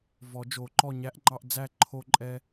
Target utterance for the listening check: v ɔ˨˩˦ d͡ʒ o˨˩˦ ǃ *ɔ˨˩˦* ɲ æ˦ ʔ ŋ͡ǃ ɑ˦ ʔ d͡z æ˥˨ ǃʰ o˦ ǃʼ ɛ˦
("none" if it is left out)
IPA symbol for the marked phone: ɔ˥˨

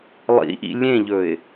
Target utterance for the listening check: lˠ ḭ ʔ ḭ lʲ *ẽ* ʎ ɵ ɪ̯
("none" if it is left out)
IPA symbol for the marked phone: ẽ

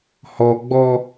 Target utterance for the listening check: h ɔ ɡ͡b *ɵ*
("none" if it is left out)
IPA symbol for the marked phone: ɔ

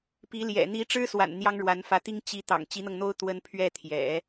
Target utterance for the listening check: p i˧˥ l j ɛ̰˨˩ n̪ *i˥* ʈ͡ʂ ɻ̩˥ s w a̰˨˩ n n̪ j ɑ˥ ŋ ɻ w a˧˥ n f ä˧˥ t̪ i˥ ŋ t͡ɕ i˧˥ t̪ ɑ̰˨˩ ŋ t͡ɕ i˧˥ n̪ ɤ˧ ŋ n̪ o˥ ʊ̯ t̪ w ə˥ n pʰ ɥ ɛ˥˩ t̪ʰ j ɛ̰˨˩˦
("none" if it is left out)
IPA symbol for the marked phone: i˧˥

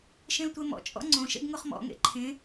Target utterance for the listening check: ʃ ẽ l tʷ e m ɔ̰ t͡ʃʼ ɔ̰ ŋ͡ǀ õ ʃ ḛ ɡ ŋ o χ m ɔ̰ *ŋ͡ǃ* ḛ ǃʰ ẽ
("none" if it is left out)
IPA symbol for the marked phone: ŋ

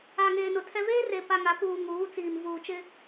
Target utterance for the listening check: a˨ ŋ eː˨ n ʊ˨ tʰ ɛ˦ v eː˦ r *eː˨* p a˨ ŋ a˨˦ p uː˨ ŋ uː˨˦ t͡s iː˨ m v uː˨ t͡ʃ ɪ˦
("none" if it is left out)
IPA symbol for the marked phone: e˨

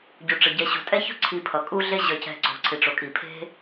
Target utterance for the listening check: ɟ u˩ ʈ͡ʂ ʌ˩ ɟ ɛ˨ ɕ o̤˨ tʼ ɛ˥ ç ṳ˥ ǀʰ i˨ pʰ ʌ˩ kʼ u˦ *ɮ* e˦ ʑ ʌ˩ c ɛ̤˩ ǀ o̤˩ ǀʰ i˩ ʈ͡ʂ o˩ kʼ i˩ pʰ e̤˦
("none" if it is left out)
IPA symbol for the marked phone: ɮ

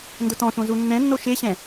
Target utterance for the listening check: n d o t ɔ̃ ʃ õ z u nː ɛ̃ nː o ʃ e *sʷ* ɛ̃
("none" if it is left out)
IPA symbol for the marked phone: ɕ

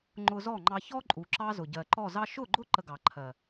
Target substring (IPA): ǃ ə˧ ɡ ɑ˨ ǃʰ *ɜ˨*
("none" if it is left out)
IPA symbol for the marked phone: ɜ˨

